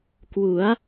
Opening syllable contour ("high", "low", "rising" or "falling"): rising